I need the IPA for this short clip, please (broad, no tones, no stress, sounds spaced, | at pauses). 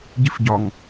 ɟ i f ɟ ɒ ŋ